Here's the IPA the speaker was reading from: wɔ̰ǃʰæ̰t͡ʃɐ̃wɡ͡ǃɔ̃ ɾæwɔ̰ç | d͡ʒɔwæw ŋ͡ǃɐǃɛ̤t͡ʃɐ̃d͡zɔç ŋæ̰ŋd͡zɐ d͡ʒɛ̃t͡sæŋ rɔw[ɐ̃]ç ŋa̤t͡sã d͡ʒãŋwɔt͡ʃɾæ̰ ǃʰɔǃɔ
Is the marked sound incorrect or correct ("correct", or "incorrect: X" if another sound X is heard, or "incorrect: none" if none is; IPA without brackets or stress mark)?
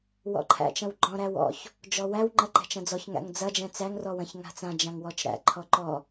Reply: correct